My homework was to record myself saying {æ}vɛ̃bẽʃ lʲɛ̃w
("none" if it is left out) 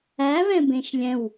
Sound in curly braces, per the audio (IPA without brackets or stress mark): æ